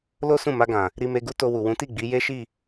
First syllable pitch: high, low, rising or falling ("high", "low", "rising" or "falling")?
high